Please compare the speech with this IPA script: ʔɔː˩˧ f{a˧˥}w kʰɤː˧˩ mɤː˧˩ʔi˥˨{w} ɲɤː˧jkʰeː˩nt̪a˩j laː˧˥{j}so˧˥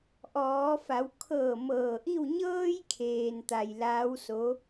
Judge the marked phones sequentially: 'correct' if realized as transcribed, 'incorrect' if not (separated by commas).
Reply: incorrect, correct, incorrect